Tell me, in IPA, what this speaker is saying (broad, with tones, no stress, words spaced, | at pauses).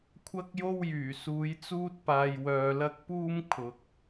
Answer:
kʷʰɐ˥k̚jo˥wjyː˨˩ suː˨˥jt͡suː˥t̚paː˧j wœː˧lɐ˥k̚ puː˥m kʰʊ˨˥k̚